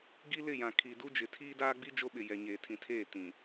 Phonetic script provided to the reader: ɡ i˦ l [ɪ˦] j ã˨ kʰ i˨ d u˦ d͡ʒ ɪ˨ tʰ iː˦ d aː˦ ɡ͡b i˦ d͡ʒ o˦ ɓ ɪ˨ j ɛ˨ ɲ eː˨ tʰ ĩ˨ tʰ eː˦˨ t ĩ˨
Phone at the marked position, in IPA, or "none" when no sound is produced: ɪ˦˨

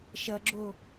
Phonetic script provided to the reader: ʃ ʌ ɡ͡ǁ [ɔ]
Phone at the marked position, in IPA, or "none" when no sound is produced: o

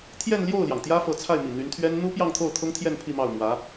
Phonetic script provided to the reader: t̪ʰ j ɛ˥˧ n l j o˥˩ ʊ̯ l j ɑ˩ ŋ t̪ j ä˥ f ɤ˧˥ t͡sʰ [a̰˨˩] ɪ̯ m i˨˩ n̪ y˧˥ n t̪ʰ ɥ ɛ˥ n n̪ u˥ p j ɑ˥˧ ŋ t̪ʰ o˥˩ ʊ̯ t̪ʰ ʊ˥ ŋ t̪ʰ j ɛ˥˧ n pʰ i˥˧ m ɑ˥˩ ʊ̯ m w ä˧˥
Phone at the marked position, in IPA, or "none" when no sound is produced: a˥˩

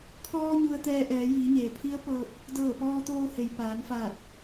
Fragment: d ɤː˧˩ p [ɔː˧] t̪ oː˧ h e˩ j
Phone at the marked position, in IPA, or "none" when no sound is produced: ɔː˧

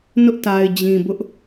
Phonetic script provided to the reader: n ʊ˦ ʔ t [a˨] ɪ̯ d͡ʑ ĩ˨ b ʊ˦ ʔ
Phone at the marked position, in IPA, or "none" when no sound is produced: a˨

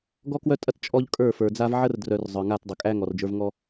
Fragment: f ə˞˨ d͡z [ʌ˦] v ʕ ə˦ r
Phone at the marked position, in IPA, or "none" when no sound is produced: a˦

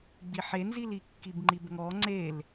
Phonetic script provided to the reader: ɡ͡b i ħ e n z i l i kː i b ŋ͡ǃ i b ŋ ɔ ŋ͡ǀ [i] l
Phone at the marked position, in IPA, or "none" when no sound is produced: e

